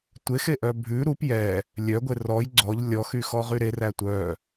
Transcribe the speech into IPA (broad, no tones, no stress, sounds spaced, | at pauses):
tʷ e x e ʔ œ bʱ ʉ ɾ u p j ɛ | lʲ œ ɡʷ e r ɔ j ɡ͡ǀ ɔ ʎ lʲ ɔ x y x ɔ ʁ y ɾ e r æ tʷ œ